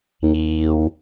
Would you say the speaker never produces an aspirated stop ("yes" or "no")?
yes